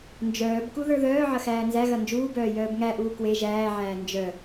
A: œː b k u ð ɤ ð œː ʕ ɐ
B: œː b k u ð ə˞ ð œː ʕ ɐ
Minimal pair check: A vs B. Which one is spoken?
B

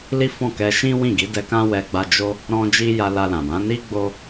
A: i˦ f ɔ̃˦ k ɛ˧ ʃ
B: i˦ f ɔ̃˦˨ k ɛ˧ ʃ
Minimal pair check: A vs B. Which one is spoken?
B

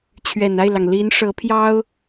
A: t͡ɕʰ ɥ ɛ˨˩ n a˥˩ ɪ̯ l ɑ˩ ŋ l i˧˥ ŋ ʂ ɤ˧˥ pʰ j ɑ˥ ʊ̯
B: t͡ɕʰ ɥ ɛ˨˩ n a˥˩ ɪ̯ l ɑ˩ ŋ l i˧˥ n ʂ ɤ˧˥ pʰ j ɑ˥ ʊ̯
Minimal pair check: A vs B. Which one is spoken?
B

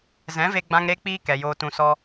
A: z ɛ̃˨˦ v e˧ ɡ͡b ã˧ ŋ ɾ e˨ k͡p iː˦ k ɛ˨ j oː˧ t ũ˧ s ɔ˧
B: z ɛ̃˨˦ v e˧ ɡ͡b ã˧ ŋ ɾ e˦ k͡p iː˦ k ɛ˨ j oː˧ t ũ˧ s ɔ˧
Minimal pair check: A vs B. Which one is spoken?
B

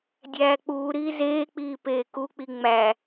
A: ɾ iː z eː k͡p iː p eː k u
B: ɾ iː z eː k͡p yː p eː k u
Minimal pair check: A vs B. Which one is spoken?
A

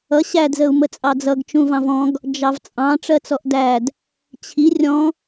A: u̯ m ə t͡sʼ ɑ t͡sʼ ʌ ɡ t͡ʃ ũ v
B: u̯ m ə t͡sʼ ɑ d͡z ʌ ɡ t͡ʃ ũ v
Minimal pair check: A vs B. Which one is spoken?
B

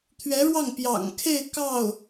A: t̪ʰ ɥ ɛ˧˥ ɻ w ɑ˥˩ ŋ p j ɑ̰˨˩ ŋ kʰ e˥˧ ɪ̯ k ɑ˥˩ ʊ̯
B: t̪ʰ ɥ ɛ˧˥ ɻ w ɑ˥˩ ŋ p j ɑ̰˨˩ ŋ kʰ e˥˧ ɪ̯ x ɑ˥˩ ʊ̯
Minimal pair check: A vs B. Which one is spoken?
A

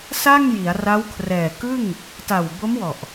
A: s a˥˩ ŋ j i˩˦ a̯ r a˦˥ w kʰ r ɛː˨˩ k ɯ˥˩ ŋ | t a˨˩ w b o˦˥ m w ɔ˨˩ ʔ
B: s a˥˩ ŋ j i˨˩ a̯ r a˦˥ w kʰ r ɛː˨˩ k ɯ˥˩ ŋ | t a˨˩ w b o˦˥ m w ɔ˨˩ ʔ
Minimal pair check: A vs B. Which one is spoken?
A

